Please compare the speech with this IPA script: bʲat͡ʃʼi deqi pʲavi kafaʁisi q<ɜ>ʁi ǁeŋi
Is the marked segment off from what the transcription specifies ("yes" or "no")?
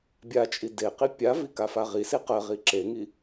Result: no